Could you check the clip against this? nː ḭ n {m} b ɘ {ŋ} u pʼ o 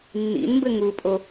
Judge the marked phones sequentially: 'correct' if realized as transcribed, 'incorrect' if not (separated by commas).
correct, correct